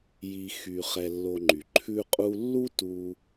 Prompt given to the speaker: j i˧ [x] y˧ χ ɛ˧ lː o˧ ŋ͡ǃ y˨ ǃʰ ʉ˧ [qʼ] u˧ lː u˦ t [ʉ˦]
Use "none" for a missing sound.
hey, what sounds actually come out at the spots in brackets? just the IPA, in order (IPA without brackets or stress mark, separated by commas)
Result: x, qʼ, u˦